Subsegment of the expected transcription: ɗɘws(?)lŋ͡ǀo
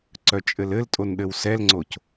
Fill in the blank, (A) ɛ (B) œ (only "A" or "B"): A